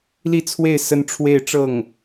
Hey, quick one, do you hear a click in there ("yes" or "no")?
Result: no